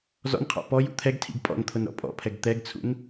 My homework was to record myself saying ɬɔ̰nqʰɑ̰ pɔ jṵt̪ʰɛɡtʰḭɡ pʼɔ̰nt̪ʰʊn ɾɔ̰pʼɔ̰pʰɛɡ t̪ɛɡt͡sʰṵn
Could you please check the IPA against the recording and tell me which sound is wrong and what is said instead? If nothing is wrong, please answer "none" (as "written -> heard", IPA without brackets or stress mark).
ɬ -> z